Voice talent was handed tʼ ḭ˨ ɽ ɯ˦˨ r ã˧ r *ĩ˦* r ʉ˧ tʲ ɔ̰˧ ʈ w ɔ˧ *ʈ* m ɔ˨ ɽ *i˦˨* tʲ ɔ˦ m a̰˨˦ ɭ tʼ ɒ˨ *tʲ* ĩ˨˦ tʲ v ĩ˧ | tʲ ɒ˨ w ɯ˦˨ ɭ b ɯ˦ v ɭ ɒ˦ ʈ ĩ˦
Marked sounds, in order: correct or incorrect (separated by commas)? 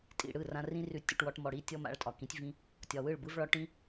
correct, correct, correct, incorrect